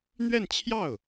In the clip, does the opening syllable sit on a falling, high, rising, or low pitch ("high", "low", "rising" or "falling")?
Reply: falling